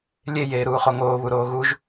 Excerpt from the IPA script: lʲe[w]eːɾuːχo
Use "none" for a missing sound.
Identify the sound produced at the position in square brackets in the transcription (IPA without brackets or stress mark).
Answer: j